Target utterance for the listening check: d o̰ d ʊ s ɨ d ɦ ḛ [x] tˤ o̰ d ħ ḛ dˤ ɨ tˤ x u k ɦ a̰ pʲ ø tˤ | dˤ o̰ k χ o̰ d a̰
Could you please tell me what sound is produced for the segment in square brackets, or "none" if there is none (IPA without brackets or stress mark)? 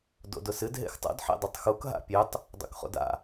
x